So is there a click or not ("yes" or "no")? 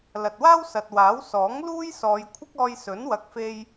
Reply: no